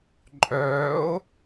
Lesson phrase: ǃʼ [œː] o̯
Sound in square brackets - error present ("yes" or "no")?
no